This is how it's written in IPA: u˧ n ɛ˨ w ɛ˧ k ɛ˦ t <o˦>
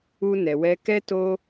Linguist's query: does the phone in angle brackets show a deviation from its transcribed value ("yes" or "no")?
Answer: no